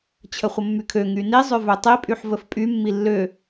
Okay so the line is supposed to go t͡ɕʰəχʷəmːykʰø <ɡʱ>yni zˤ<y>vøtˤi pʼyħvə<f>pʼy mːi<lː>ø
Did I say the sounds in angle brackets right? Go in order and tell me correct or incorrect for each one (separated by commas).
incorrect, incorrect, correct, correct